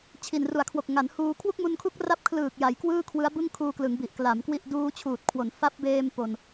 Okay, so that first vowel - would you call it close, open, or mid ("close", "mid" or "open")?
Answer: close